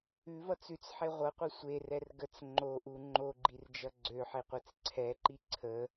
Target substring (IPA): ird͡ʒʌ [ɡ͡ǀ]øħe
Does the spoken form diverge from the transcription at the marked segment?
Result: no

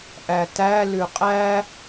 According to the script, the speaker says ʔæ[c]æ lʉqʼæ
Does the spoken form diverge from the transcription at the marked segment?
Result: yes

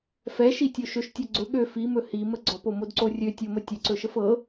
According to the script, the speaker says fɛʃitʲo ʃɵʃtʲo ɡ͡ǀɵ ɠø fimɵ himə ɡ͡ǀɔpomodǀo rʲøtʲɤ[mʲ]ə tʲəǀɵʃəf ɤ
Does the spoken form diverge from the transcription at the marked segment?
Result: yes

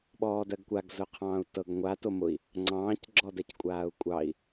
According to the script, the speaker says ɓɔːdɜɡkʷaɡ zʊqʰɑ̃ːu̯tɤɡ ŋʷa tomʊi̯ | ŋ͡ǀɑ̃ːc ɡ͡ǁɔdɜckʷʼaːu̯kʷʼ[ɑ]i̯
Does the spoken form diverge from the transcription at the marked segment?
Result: no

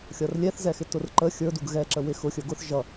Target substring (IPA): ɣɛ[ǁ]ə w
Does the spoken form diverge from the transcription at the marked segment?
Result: no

